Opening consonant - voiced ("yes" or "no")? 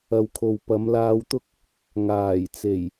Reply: yes